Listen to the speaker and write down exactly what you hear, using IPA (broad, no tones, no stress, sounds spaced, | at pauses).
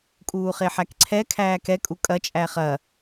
kʼ uː χ e ħ æ k ǀʰ ɛ kʰ æː k ɛ kʼ u kʼ ɐ t͡ʃʼ æ χ ɐ